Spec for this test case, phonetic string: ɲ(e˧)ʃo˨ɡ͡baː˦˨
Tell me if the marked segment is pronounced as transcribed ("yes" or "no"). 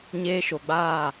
no